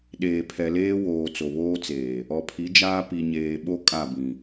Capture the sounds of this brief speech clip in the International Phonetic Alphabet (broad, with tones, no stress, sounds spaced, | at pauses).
ɗ eː˨ pʰ ɛ˨ l eː˦ w oː˨ t͡s o˨ β oː˦ t͡s eː˨ | ɔ˨ pʰ i˨˦ d͡ʒ aː˦ p i˨ ɲ eː˨ ɓ o˦ kʼ a˦˨ b ĩ˨